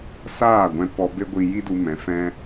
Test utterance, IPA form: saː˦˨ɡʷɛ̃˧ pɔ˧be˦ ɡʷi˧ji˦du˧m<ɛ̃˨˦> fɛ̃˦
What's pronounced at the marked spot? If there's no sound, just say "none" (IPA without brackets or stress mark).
ɛ̃˨˦